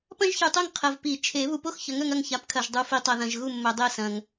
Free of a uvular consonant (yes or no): no